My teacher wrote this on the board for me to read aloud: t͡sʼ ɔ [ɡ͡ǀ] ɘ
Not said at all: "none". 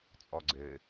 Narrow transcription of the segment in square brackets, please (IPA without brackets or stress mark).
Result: ɡ͡ǀ